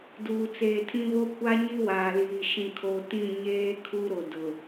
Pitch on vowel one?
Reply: low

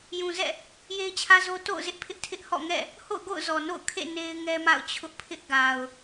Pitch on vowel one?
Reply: low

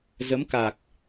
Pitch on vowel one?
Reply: rising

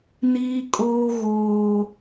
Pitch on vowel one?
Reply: high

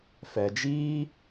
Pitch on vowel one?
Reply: low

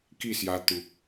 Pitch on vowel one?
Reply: falling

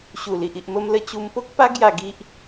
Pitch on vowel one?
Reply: low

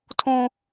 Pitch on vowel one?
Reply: high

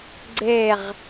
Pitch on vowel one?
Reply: low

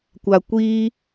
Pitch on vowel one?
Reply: low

